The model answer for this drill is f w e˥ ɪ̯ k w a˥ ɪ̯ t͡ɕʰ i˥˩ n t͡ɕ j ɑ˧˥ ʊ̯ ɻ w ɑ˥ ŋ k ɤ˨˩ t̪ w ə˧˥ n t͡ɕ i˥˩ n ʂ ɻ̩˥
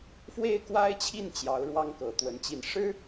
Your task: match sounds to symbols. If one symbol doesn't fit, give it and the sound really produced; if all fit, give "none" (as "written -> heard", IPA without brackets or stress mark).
none